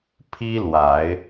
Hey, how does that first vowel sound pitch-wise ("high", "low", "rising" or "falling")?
high